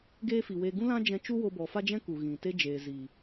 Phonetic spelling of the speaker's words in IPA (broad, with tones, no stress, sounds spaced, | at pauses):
ɡ eː˦ f i˨ w e˧ ɡ ũ˦ l ã˦ d͡ʒ ɛ̃˧ t͡ʃ u˦ w o˧ b ɔ˨ f a˦ d͡ʒ ɛ̃˦ k u˨ ɣ ĩ˨ t e˦ d͡ʒ eː˨ z iː˨